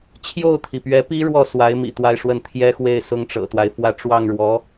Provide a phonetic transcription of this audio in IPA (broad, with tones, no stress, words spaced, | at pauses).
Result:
t͡ɕʰjo˥˩ʊ̯t̪ʰi˩pɥɛ˧˥pi˥ ɻwɔ˥˩swa˧˥ɪ̯ mḭ˨˩t̪wa˥˧ɪ̯ʂwə˥˩n t̪ʰjɛ˥xwe˥˩ɪ̯ sʊ˥ŋʈ͡ʂɤ̰˨˩t̪wa˦ɪ̯fwä˥˧ ʈ͡ʂwɑ˥˩ŋɻwɔ˧˥